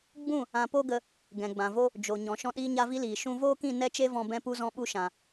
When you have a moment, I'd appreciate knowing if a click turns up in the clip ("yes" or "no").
no